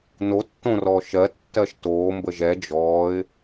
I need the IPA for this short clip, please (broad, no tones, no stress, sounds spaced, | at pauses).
n o tː õ r ɔ ʃ ɜ tː ɜ ʃ t oː m b ə ʒ ɛ d͡ʒ ɔː ɪ̯